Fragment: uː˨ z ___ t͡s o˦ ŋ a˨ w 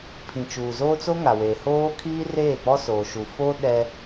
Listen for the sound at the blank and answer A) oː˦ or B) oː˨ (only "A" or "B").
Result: A